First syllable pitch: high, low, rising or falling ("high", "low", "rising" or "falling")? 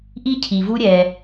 high